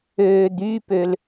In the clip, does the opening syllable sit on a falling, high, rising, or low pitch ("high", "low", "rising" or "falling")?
low